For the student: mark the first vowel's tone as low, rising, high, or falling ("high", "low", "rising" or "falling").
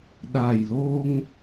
low